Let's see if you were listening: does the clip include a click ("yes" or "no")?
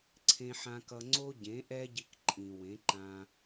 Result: yes